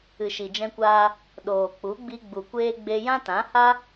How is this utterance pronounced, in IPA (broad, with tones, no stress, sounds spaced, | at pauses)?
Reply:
ɨ˨ ʃ i˨ d͡ʒ ɛ̃˧ kʷ aː˧ | ɗ oː˨ k͡p u˨˦ ɡ͡b i˧ ɡ͡b u˨ kʷ eː˧ ɡ͡b e˧ j ã˦ t ã˨˦ h a˦